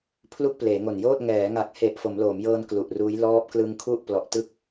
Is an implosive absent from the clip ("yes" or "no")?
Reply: yes